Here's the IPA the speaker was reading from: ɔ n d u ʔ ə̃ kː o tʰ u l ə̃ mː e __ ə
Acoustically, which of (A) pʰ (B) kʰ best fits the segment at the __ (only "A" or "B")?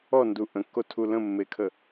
B